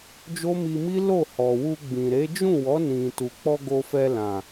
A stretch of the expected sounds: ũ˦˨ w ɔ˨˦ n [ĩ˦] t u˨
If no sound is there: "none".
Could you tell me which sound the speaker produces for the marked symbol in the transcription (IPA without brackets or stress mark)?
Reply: ĩ˧